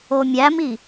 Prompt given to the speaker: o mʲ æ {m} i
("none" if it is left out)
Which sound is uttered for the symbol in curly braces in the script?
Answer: m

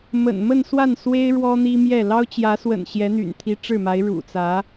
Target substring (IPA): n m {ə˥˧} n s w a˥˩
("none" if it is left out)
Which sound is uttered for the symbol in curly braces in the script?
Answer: ə˥˧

